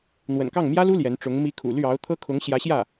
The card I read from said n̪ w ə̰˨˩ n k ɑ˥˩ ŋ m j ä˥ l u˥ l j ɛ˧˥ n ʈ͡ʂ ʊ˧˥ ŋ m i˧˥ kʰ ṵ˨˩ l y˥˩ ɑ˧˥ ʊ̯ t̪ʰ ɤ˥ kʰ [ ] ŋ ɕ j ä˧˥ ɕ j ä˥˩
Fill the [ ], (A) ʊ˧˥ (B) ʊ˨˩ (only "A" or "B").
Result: A